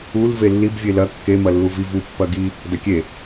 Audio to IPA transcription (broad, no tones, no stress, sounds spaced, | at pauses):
u l v e lː i b vʲ e l ɐ kː e m ɐ lː u v i v u pː ɐ ɡ i | d ɐ kʲ e